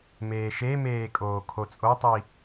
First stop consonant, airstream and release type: ejective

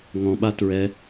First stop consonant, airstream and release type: implosive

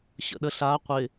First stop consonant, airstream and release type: implosive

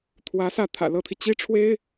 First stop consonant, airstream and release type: aspirated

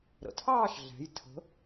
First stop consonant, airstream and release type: aspirated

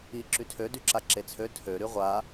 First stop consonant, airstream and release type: click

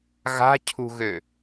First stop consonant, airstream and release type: aspirated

